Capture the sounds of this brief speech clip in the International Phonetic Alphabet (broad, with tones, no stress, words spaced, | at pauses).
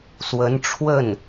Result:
swə˧˥nʈ͡ʂʰwə˥˩n